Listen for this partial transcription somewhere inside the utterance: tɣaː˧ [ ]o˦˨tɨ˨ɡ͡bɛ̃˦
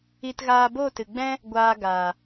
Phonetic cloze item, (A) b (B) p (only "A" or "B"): A